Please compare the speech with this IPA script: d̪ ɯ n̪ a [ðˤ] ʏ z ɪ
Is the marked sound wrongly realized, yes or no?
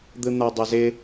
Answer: yes